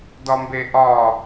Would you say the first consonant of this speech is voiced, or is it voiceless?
voiced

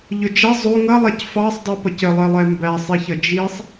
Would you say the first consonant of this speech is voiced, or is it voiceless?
voiced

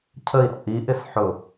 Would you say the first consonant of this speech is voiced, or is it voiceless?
voiceless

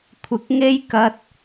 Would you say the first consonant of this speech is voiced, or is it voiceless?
voiceless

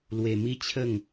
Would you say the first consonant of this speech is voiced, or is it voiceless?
voiced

